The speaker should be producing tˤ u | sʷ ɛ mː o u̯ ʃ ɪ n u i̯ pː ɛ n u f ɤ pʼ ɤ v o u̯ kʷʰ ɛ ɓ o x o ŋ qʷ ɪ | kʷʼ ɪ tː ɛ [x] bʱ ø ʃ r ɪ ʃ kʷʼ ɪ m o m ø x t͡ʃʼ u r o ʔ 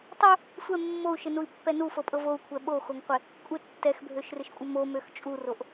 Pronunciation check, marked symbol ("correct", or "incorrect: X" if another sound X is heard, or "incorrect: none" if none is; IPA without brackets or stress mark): correct